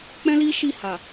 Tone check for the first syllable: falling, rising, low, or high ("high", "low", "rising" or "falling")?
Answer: high